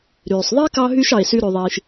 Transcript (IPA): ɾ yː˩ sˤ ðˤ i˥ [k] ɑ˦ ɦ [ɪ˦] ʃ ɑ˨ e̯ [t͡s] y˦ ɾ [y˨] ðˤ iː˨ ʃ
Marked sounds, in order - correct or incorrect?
correct, incorrect, incorrect, correct

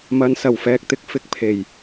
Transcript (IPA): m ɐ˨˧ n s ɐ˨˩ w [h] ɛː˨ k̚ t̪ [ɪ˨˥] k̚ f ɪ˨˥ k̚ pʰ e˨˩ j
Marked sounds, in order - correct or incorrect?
incorrect, correct

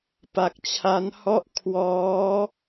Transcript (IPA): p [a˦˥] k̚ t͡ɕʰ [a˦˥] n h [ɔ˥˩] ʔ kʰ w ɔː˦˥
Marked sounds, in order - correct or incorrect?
incorrect, correct, correct

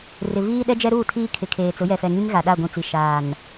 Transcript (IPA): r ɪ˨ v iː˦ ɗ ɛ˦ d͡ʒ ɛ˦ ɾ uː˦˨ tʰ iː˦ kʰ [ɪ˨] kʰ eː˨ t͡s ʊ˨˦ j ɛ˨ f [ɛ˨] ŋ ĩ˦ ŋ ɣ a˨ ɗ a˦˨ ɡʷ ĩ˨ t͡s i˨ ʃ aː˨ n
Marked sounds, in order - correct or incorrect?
correct, correct

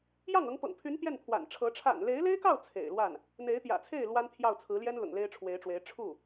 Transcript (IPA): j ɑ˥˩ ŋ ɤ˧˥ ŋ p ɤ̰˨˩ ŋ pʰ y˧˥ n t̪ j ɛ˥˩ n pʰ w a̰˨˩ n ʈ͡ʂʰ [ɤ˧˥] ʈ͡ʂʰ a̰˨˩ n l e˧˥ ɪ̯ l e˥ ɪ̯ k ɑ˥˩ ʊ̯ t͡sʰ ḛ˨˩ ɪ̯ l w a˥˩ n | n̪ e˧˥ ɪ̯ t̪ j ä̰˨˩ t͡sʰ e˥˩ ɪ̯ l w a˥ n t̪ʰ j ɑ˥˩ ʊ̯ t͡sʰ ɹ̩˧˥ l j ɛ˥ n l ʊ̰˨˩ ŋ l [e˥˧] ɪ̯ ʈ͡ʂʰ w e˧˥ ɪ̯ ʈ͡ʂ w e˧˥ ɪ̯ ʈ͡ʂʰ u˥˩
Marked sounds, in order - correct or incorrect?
correct, incorrect

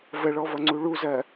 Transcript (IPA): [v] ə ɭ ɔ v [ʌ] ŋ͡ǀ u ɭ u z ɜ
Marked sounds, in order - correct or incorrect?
correct, correct

